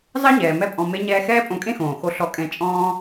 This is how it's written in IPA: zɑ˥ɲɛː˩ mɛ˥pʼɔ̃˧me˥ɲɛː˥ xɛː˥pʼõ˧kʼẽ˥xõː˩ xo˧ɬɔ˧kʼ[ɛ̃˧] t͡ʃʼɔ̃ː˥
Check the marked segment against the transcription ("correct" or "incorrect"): correct